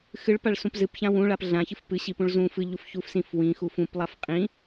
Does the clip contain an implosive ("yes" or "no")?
no